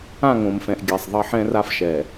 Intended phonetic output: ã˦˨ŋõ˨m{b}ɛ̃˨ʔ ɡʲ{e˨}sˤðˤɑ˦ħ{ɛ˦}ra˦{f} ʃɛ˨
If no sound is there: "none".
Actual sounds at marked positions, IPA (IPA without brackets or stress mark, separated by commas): f, e˨, ɛ̃˦, f